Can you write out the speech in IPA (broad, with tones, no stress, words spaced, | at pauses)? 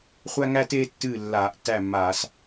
χʷæ˥ŋæ˥teː˥tːɨː˥˩ lːaː˧˩˧ʔtːæ˥˩mːaː˧˩˧s